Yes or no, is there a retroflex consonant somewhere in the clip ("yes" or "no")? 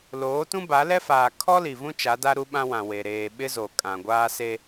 no